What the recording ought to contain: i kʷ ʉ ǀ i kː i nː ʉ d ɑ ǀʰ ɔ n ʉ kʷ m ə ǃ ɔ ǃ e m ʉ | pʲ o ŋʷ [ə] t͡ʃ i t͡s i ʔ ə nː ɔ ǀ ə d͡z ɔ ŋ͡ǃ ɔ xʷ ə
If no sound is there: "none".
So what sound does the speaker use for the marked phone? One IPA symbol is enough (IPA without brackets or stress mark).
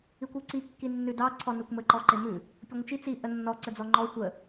ə